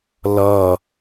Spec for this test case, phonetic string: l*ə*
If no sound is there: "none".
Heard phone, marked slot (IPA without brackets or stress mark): ʌ